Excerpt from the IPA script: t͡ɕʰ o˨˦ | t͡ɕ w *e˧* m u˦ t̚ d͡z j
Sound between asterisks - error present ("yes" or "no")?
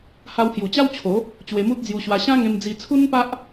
no